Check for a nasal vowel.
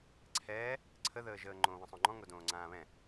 present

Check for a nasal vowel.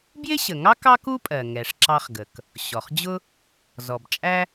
absent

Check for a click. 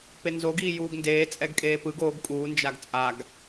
absent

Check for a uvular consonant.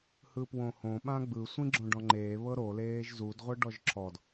present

